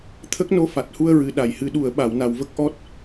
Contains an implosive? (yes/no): yes